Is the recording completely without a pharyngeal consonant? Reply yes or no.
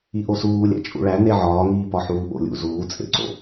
no